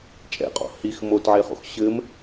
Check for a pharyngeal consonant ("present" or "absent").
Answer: present